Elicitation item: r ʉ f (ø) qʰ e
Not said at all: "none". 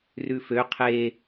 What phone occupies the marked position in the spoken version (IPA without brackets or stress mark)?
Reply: ø